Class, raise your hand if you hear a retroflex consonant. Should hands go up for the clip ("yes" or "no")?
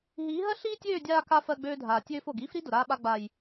no